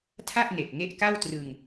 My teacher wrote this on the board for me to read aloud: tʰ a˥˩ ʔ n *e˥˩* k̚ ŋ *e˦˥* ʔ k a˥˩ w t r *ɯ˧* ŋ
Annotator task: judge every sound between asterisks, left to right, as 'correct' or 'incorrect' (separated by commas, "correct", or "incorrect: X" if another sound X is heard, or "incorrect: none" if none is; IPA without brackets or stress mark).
incorrect: e˨˩, correct, correct